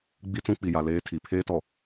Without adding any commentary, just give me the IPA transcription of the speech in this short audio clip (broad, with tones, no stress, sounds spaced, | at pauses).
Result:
ɡ͡b i˦ t͡s ũ˦ k͡p i˨ j a˨ l eː˦ tʰ i˨ pʰ eː˦ t ɔ˨